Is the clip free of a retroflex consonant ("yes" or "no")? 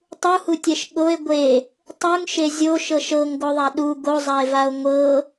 yes